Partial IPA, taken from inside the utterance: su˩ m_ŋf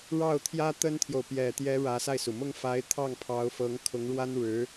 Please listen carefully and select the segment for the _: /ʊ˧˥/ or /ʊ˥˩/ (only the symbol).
ʊ˥˩